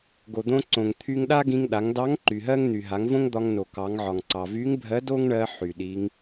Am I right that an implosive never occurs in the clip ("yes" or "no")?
no